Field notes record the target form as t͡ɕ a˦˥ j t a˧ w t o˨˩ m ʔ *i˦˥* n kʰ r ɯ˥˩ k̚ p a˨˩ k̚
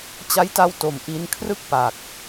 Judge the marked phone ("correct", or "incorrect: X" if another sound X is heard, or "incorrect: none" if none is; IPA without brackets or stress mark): correct